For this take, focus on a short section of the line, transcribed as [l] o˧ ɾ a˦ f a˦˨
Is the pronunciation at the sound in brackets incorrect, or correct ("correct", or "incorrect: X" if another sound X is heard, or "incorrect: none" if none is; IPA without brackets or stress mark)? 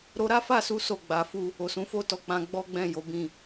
incorrect: ɾ